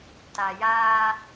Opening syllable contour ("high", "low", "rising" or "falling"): low